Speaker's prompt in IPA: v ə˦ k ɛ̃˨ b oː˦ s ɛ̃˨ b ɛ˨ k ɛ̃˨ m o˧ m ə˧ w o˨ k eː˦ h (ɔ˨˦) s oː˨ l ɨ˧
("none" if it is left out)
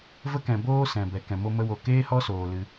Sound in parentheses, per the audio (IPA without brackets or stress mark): ɔ˦